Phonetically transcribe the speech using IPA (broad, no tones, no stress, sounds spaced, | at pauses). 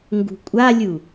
ŋ ɡ ṳ kʷʼ a lʲ u